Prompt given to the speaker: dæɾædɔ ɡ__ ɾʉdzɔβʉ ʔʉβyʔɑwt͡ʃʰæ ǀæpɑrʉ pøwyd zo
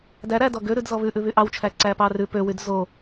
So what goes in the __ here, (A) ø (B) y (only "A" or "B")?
A